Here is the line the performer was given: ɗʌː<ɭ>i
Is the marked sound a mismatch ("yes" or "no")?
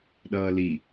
yes